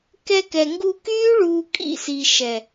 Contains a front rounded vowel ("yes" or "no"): yes